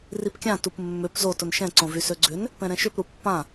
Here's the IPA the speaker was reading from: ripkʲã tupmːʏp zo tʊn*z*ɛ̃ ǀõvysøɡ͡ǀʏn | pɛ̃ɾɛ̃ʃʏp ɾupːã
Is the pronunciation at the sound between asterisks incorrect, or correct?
incorrect